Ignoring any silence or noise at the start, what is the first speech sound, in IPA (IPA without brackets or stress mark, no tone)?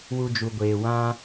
w